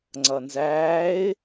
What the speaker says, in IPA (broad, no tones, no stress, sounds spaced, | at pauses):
ŋ͡ǀ ʌ n z æː ɪ̯